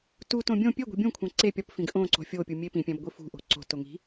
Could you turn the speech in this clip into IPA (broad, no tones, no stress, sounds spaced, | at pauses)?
t u t õ bʲ õ pʲ e ɡʷ i̤ bʲ ũ kʷʰ æ̃ ǀ e pʲ ɒ p f ĩ ɡ ʔ õ ǀ o̤ fʲ o pʲ u mʲ e p ĩ pʲ æ̃ b ɡʷ i f ṳ ʔ o̤ ǀ o̤ t o ŋ i̤